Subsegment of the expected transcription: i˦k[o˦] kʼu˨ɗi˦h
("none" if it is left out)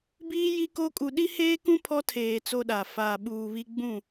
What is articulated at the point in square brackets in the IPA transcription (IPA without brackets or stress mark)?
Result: o˦